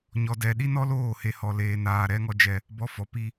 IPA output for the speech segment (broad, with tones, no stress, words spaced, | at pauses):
ɲɔ˧dɛ˧ ɗi˦nɔ˦ loː˦˨he˧ hɔ˧leː˧naː˧ ɾɛ˧ŋɔ˧ d͡ʒɛ˧ | bɔ˧fɔ˨˦ pi˦